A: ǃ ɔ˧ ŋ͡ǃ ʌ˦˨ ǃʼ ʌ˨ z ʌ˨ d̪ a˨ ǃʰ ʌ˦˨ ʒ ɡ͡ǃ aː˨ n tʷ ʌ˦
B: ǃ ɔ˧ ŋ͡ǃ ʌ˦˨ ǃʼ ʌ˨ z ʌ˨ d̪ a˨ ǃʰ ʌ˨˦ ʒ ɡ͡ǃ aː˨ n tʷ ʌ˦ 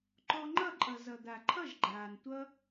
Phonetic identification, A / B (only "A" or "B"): A